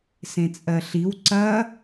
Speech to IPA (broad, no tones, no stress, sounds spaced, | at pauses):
s ẽ t͡sʼ ɜ ɬ i w ǀ ɐ